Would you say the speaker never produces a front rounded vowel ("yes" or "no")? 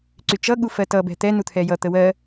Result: no